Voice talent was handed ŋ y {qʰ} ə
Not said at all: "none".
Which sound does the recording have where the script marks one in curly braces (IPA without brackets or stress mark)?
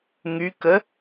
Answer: k